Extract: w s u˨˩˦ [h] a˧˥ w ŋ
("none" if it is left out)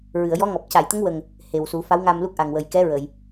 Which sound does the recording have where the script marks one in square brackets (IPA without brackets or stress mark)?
f